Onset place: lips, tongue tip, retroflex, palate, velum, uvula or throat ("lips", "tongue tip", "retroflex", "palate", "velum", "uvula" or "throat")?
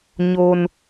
palate